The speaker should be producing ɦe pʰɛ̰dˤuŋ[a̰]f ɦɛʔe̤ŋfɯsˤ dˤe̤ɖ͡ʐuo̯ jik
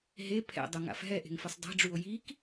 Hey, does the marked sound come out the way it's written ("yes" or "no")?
yes